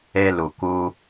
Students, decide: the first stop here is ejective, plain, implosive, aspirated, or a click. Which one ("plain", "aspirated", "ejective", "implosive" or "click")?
plain